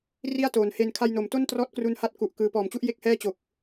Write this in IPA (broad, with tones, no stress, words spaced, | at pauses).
ri˥˩a̯toː˩˦nhe˧n kʰa˧jno˩˦mto˥˩ntrɔː˦˥t̚ kru˧nha˦˥t̚ ku˨˩ʔkɯː˧ pɔː˨˩mt͡ɕu˥˩ʔje˦˥k̚ hɛː˥˩t͡ɕo˨˩k̚